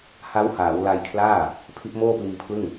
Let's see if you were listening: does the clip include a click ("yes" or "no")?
no